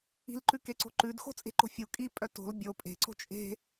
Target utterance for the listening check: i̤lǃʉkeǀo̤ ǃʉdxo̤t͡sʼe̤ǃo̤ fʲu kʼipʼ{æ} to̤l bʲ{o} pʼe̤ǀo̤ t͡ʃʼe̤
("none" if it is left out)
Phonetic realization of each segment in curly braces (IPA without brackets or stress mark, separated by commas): œ, o